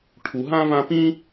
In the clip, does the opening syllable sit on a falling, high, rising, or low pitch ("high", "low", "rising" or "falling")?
low